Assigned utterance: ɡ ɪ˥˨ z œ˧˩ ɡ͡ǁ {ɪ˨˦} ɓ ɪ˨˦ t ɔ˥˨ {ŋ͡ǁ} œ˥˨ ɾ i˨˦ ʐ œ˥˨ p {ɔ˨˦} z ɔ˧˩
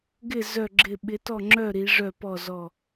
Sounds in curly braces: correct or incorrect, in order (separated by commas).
incorrect, correct, incorrect